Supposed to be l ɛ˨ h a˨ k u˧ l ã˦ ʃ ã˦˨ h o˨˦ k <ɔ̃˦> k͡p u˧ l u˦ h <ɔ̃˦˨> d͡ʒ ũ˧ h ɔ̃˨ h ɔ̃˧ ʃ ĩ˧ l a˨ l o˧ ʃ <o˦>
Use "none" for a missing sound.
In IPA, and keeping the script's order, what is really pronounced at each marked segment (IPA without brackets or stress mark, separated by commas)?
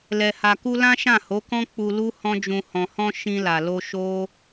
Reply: ɔ̃˦, ɔ̃˦, o˦